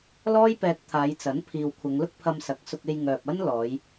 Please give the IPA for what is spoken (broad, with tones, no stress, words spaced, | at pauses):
lɔː˥jpɛː˧k̚t̪ʰaː˨˧jt͡sɐ˨˥n pʰiː˨wkʷʰɐ˨˧ŋ lʊ˥k̚pʰɐ˧msɐ˨˥k̚sʊ˧k̚ e˧jŋœː˨p̚ ɐ˥n lɔː˨˧j